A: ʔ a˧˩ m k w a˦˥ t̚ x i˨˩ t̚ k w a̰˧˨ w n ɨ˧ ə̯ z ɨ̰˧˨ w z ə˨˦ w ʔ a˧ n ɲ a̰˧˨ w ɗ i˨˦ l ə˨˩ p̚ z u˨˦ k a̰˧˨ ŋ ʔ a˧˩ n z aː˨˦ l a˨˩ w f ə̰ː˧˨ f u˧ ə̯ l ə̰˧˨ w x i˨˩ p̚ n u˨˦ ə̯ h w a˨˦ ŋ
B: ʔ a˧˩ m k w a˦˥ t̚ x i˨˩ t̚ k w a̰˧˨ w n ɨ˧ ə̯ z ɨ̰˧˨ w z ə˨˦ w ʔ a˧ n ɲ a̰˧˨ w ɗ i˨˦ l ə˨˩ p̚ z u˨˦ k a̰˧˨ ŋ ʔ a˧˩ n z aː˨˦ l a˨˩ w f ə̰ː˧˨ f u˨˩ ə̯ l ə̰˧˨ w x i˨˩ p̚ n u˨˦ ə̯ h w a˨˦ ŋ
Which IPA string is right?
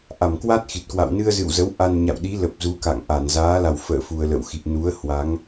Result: B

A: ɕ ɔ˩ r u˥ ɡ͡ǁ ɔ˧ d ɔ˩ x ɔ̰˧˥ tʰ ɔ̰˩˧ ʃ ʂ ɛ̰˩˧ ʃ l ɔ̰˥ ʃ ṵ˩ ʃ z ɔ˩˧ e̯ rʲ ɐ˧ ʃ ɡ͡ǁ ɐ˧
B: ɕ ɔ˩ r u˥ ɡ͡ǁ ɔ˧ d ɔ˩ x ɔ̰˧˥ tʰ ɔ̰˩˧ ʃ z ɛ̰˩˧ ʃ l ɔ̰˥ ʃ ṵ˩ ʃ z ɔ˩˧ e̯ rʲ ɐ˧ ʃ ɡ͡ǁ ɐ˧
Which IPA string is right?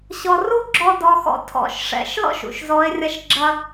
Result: A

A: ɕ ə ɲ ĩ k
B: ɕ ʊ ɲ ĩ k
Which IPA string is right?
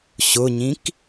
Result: B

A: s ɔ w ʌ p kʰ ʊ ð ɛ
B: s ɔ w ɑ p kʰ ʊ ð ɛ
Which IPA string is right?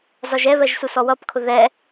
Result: A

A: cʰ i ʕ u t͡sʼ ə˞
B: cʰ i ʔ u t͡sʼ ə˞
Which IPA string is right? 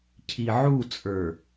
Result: A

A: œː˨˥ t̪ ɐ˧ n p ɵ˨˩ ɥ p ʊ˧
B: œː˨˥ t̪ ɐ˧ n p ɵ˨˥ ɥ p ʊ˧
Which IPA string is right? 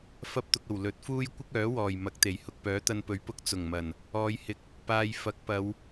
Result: B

